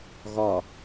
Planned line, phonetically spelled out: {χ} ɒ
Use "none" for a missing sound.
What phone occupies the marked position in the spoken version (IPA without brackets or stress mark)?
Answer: ɣ